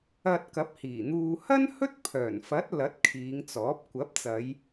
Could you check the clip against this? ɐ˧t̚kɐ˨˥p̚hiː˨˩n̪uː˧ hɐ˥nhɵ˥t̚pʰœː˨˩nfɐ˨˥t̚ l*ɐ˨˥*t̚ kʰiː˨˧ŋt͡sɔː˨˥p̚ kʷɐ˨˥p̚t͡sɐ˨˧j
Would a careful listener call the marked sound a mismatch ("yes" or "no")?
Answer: no